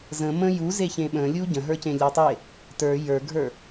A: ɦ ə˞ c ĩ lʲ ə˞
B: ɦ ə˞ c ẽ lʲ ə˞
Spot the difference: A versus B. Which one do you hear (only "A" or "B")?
B